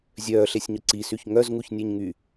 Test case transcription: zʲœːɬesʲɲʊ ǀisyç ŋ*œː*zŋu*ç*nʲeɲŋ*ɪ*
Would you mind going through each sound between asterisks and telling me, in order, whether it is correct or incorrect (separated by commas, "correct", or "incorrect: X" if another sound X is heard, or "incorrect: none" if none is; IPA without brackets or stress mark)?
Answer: incorrect: œ, correct, incorrect: y